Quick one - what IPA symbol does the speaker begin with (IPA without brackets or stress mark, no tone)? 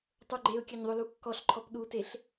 tˤ